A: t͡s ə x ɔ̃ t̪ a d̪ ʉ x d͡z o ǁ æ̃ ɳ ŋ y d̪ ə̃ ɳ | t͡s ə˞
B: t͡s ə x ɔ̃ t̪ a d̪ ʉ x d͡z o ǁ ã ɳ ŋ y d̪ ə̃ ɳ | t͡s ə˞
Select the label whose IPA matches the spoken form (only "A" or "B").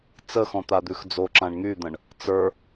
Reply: B